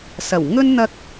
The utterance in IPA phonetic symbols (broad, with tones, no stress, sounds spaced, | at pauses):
s ɐ˨˩ w ŋ ɵ˥ n n̪ ɐ˥ k̚